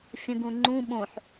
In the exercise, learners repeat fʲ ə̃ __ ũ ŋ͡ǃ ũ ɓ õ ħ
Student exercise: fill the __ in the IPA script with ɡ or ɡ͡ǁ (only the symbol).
ɡ